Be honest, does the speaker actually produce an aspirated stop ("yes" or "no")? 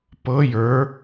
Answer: no